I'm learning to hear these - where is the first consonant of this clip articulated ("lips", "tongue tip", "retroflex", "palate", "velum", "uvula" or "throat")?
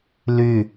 tongue tip